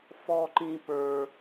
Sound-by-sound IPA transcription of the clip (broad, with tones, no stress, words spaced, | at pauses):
fɔ˥ǃĩ˥ pə˞˥